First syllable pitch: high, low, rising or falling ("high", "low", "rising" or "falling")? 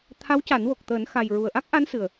rising